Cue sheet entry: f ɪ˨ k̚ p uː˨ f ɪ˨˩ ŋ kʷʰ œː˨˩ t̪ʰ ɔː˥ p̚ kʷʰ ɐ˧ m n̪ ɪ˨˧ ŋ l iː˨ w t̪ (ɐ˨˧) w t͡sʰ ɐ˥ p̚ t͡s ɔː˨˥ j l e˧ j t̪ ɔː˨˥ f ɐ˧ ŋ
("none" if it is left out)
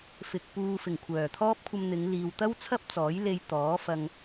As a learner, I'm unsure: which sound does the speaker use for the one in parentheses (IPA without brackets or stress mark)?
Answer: ɐ˥